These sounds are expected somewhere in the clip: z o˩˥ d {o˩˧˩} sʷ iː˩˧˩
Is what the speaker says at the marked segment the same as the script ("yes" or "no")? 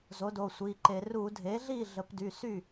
yes